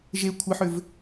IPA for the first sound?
ʒ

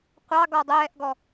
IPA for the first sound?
qʷ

